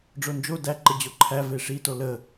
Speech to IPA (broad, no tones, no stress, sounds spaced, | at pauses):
ɖ͡ʐ o n d͡ʒ o d æ ǃ ə d͡ʑ o ǃʰ æ v e ʂ i t o l ə